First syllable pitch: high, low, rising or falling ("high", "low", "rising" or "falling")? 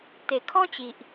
low